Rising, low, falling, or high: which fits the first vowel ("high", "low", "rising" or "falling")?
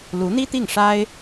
rising